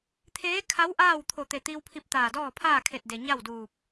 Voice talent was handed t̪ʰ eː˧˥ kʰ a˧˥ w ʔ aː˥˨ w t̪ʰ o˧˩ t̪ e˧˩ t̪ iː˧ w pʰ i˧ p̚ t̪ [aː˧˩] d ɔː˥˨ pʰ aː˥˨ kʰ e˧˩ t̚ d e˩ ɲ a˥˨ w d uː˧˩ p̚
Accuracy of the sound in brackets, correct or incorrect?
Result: correct